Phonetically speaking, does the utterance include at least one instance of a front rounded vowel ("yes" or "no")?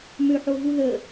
yes